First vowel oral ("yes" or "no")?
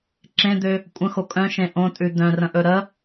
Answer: no